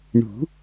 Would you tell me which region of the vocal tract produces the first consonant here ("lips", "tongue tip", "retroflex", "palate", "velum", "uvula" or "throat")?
retroflex